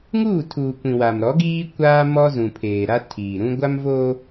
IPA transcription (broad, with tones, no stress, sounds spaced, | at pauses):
ŋ uː˦˨ tʰ uː˨ kʷ ĩ˨ w a˨ m ɾ ɔ˨˦ ɡ iː˦ kʷ aː˦ m ɔ˦ z ũ˨ pʰ eː˨ ɾ a˦ tʰ iː˨ ɾ ũ˦ ɡʷ a˦ m v oː˦